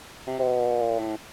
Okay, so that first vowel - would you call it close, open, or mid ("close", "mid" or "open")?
mid